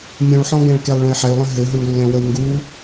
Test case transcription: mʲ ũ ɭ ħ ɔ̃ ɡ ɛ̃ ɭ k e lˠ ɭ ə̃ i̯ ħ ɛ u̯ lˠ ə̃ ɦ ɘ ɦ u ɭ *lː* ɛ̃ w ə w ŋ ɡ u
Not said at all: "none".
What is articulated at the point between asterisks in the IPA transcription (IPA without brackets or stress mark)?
lː